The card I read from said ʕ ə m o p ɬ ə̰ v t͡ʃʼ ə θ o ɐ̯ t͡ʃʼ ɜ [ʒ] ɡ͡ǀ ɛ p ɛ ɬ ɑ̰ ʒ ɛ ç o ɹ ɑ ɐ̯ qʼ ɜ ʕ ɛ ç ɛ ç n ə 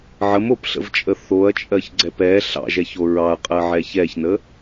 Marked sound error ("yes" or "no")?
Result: yes